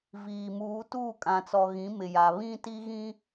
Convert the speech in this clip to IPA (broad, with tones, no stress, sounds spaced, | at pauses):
v iː˨ m uː˨˦ t uː˦˨ kʼ ã˨ t͡s ɔ˨ ɣ ĩ˨˦ m ɪ˨ j a˨ β ĩ˦ t i˦ ɣ ĩ˦